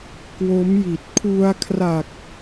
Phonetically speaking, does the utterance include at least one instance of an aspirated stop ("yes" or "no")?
yes